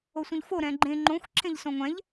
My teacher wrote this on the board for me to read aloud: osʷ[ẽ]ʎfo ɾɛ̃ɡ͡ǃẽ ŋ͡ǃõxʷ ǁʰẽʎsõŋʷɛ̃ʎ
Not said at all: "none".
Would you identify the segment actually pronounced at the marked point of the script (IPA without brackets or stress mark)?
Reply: ĩ